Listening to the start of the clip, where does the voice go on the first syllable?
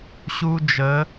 high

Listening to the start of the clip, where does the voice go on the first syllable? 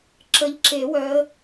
rising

